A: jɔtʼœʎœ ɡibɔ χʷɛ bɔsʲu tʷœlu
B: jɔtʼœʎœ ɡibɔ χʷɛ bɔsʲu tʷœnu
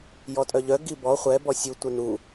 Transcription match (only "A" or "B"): B